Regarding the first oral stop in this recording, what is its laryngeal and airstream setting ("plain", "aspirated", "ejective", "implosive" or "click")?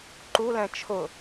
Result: click